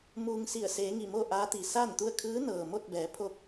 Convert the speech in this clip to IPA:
m uː˧ ŋ s i˧˩ ə̯ s eː˩˧ ŋ i˧˩ m oː˥˨ ʔ aː˧˥ t̪ i˩ s aː˥˨ n t̪ u˥˨ ə̯ kʰ ɯː˧˥ n ɤː˩ m o˥˨ t̚ b ɛː˩˧ pʰ o˥˨ k̚

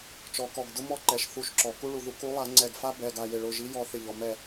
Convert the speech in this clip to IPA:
t͡ʃ ɔ˨˩˦ k ɔ˩˧˩ ɡ d ʊ˥ m ɔ˥ ǃ ɛ˩ ʃ θ u˧˩ ʃ ǁ ɔ˩ k u˥ ɭ u˩ ð u˨˥ k u˨˥ lˠ a˨˩˦ ŋ͡ǀ ɛ˧˩ ɡ f a˥ b ɛ˩˧˩ ɡ a˧˩ j ɪ˧˩ ɭ ʊ˩˧˩ ʒ i˨˥ j ɔ˨˥ θ ɪ˧˩ ʎ ɔ˩ m ɛ˧˩

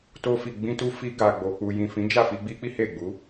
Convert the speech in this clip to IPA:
t o˧ f i˨ ɡ͡b ĩ˧ t u˧ f i˧ ɡ a˨ ɡ͡b o˨ k͡p u˨ j ĩ˨ f ĩ˨˦ d͡ʒ a˦˨ f i˧ ɡ͡b i˦ k͡p i˦ h e˦˨ ɡ͡b u˨˦

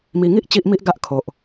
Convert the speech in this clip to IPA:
m i˧ ŋ i˦ ʔ t͡ɕ i˦ ʔ m i˦ ʔ ɡ a˦ ʔ kʰ o˨ ʔ

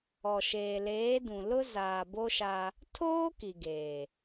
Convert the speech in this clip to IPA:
ɔ˨ ʃ eː˨ l eː˨˦ d ũ˨ l ʊ˦ z aː˨ b o˦ ʃ a˦ | tʰ oː˦ k i˨ ɡ eː˨

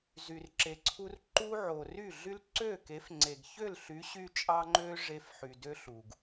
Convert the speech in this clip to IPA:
z y˨ r ǁ e˨ ǀʰ u˧ r ǃ u˦ ʕ o˨ r y˦˨ ɮ y˦ l ǀ ø˦˨ k e˨˦ f ŋ͡ǀ e˨ ɡ ç ø˦˨ l ɬ y˨˦ ɕ y˧ t͡ʃʼ ɑ˦ ŋ͡ǃ ø˦ ʐ e˧ f ħ y˨ d ø˦ ɬ u˨ ɡ

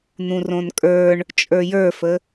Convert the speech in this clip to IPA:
n̪ ũ r õ n kʼ ə˞ ɳ | t͡ʃʼ ə˞ j ə˞ f ə

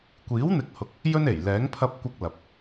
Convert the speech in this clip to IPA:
kʷ iː˨˥ w n̪ ɪ˨˥ k̚ h ʊ˨˥ k̚ | j ɵ˥ n e˨˩ j l ɛː˨˥ ŋ pʰ ɐ˧ p̚ kʷ ɐ˧ k̚ l ɐ˨ p̚

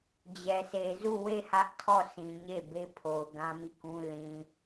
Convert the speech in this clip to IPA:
d͡ʑ ɛ˨ s e˨ z u˦˨ w e˦˨ h ä˦ ʔ tʰ ɔ˦˨ s ĩ˨ ɲ e˦˨ b e˦ pʰ o˨ ʊ̯ ɡ ã˦ m i˦˨ k ũ˦ l ĩ˨

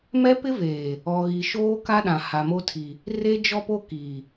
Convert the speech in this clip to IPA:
m ɛ˦ p ɪ˦ v eː˨ | ɔ˨ ɣ i˨ ʃ oː˦ k a˦ ɗ ã˨ h a˨ m o˦ tʰ i˨ | r e˦ d͡ʒ ɔ˦ p o˦ k iː˨

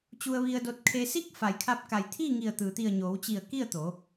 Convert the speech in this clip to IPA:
t͡ɕ u˧ ə̯ ʋ i˧ ə̯ d o˧ t̚ kʰ e˧ s i˥˨ k̚ f a˩ j kʰ a˧ p̚ k a˩ j t̪ʰ iː˥˨ ŋ i˧˩ ə̯ t̪ ɯː˩ t̪ i˧˩ ə̯ ɲ oː˩˧ w t͡ɕ i˧˩ ə̯ k i˥˨ ə̯ t̪ o˩˧

